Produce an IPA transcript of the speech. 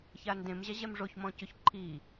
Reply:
ç a n d ẽ m ʑ a ʑ ɛ m ʐ o ç m ɔ̃ c ʊ ç ǃʰ i

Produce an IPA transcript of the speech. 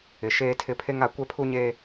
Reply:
ɪ˨ ʃ eː˦ tʰ ɪ˦ pʰ e˦ ŋ a˨˦ kʷ ɛ˦ pʰ u˦ ɲ eː˦

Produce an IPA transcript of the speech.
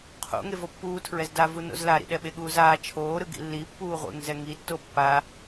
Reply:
qʰ o̰ ŋ e v o pː uː tʰ ɹ ɛ z d a v u n o̰ z l a ɾ ḭ ɗ ɛ ɓ e ɠ uː z aː t͡ʃʰ oː ɾ ɯ ɡ ḭ lː i pː uː ʁʷ ḛ ŋ z ɛ ŋ i tː o pː a

